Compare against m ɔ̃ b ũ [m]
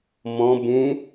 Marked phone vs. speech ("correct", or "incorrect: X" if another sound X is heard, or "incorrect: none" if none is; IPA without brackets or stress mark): incorrect: none